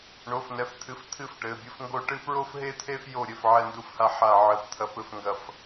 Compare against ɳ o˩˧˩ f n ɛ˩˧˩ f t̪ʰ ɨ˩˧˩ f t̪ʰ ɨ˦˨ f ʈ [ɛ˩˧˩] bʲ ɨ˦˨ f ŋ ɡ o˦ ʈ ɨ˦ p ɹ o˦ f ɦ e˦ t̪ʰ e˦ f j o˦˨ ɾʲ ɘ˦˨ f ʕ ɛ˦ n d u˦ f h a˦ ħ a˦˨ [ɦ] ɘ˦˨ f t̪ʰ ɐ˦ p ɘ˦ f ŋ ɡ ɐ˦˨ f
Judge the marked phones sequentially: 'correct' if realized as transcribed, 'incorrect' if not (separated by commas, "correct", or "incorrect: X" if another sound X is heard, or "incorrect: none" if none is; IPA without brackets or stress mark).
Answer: incorrect: ɘ˩˧˩, incorrect: ʕ